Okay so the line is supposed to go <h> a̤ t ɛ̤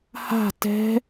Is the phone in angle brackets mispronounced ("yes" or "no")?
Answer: no